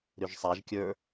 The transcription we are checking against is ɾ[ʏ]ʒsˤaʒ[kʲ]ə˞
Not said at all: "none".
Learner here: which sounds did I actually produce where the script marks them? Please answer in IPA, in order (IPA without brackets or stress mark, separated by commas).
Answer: ʏ, kʲ